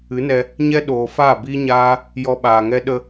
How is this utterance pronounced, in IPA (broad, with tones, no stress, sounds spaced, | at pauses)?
ɨ˨˦ n ɛ˧ | ɲ ɛ˦ ɗ oː˨ f aː˦˨ b iː˦ ɲ aː˦ | j ɔ˧ ɓ aː˨ ŋ ɛ˦ ɗ ə˧